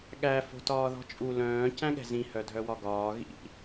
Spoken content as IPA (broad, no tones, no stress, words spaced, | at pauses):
ɠæ fo̤tɒːðɔ̤t͡ʃʼu lœ̃ː cæ̃ɠɛ̤zĩ hœdʱœwɒɡɒː ɣḭ